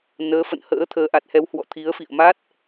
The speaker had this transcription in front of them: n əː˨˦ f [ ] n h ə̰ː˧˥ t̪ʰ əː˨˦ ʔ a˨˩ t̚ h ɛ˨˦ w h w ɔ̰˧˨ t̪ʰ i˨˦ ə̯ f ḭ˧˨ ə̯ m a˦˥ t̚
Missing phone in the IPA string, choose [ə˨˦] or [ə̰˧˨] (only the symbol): ə̰˧˨